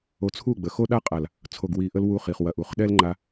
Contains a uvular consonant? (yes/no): yes